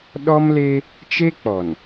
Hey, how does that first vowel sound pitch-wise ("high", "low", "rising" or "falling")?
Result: high